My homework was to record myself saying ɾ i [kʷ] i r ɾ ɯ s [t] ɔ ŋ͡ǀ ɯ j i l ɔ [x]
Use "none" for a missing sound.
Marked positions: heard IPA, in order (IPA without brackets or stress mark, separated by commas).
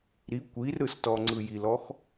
kʷ, t, x